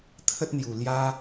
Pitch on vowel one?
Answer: high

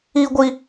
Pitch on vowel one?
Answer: high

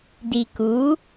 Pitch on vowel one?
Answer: low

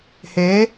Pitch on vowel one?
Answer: rising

